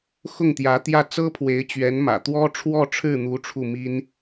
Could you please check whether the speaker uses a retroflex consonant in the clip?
yes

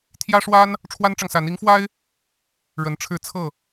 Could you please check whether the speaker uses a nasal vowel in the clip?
no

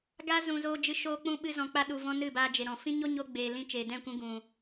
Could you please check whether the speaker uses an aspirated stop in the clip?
no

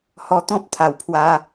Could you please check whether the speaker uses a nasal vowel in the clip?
yes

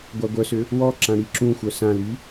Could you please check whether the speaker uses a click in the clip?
yes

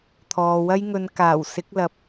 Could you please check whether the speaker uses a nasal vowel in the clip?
no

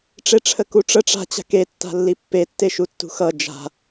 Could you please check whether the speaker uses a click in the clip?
no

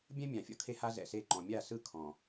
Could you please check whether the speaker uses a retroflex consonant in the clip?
no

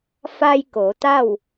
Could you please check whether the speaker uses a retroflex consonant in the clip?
no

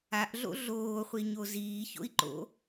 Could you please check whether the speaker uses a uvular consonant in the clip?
yes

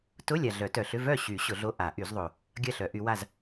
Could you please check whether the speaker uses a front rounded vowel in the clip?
yes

